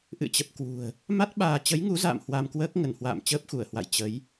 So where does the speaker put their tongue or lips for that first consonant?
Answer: throat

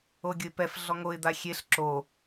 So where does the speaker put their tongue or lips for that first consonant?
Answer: velum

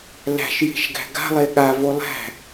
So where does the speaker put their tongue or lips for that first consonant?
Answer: tongue tip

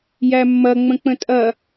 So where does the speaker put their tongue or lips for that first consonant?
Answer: palate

